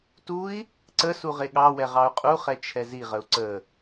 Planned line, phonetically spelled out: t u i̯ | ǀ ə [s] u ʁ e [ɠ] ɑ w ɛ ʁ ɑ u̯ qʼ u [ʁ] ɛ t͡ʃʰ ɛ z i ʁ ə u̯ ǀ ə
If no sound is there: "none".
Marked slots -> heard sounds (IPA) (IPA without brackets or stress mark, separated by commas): s, ɠ, χ